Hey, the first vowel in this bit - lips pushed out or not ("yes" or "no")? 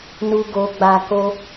yes